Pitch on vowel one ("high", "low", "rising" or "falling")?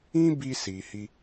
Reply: high